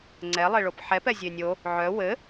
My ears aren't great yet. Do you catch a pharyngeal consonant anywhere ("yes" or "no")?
yes